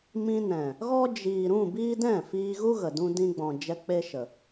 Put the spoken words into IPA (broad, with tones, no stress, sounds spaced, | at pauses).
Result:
m ĩ˧ n ɛ̃˨ | ɣ ɔ˦ d͡ʒ iː˨ ɾ ũ˦˨ b iː˦ d ɛ̃˦˨ f iː˧ ɣ u˦ ɣ ə˨ d ũ˧ d ĩ˧ ɡ͡b ɔ̃˨ d͡ʒ ɛ˧ k͡p e˦ ʃ ə˨